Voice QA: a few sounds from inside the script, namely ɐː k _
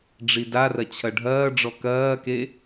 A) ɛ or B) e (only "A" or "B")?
B